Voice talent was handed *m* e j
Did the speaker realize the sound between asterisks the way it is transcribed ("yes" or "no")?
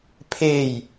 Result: no